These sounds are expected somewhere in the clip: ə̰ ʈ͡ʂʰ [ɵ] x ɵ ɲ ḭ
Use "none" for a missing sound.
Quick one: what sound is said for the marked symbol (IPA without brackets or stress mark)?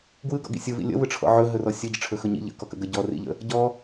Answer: ɵ